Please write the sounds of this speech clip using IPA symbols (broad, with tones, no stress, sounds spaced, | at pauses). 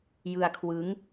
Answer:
j ɯ˧ a̯ kʰ w ɯ˦˥ ŋ